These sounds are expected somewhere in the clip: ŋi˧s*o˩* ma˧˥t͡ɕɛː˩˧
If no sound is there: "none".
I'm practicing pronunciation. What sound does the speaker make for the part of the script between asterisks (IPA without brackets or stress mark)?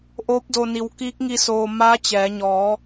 oː˩